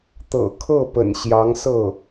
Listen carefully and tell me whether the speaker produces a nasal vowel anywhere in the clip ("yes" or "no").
no